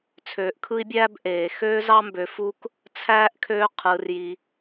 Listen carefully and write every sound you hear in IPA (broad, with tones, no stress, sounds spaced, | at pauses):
t͡sʰ øː˨ ʔ kʰ ɯ˥ i̯ bʲ æː˥ b ʔ eː˩ x øː˥ z ɑ˥ m b ø˨ f u˦ k | t͡sʰ æː˥ ʔ kʰ øː˦ qʰ ɯː˩ r j i˩